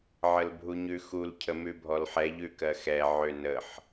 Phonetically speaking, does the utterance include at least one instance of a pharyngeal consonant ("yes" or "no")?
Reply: yes